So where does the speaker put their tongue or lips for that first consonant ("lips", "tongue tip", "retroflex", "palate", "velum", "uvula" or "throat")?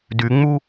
tongue tip